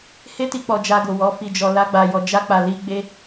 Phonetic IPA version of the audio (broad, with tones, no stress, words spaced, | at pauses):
he˦ti˧k͡pɔ˨ d͡ʒa˧ɡo˨wɔ˨˦ fi˧d͡ʒɔ˧ la˦ɡ͡ba˧jɔ˧ d͡ʒa˦k͡pa˧ li˦ ɡ͡be˦